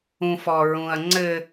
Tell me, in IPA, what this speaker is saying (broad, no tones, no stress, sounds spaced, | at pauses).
ũ f ɔ ɹ ũ ɐ̯ ŋ͡ǀ ɘ